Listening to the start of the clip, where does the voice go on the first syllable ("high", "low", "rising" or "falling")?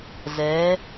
rising